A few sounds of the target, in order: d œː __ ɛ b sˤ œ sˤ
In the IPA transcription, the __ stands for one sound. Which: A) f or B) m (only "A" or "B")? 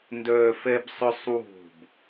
A